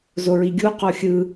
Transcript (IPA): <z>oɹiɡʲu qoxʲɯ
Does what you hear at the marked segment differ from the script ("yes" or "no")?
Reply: no